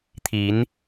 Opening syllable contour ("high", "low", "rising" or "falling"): rising